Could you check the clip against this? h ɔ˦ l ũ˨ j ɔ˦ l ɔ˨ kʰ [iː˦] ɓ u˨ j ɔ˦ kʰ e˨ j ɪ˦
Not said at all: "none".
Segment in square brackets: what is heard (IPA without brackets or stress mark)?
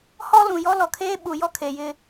eː˦